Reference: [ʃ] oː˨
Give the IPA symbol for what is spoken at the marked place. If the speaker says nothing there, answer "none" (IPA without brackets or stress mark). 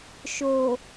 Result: ʃ